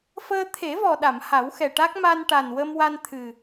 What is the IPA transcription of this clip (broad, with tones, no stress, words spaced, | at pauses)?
fəː˧t̪ʰe˨˩˦vɔ˨˩ɗa˨˩˨m ha˨˩˦wxɛ˨˩ʈa˦˥k̚ ma˧nʈa˨˩nwə˧mwa˧n t̪ʰɨ˨˩